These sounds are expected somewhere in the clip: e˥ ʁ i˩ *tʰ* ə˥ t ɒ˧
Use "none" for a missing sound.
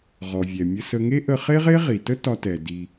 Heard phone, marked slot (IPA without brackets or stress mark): t